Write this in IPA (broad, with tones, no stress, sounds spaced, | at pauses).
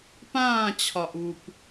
p ãː˦˨ t͡ɕʰ ɒ˨ ʔ u˨ p